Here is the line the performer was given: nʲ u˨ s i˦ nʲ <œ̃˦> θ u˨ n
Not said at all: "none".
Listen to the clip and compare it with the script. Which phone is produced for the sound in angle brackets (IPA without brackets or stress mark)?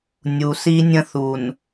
ə̃˦